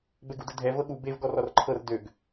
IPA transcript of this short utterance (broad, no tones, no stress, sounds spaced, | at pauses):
b ɛ ɡ u d ə dʱ ɛ v ɤ ɠ u b e v ɡ ɔ r ɔ r ǃʰ ɤ r d ø ɡ